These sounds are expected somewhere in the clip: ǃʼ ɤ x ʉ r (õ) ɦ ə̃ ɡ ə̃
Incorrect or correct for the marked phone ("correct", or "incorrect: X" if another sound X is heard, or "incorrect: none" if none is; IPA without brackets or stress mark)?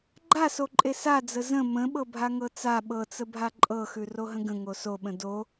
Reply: incorrect: o